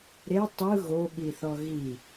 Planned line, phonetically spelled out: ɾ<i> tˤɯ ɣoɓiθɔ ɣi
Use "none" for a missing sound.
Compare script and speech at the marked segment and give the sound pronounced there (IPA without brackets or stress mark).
e